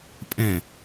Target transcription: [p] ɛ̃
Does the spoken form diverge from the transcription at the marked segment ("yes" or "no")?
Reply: yes